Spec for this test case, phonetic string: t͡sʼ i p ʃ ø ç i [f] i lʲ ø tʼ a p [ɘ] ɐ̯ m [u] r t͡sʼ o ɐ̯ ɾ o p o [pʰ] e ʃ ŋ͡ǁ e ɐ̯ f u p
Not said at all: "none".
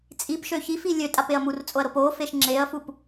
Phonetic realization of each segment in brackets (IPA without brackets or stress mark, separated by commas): f, e, u, f